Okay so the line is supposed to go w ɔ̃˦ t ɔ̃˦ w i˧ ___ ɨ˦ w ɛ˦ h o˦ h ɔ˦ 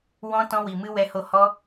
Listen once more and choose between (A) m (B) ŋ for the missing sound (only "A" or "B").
A